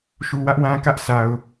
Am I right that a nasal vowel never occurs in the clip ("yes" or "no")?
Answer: no